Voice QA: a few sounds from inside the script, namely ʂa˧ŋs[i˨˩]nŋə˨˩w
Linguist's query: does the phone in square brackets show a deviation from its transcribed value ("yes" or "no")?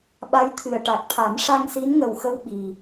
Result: yes